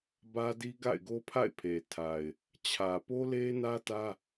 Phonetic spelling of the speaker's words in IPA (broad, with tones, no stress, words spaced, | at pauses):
bä˦di˦ ɡa̰˦˨ɪ̯ɡo˦ pʰa̰˦˨ɪ̯pʰe˨ tʰa˨ɪ̯ | t͡ɕʰä˨po˦le˦nä˦ tä˦